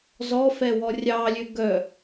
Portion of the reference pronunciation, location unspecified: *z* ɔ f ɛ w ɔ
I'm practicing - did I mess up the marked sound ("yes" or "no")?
no